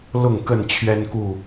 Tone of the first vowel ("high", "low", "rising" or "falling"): falling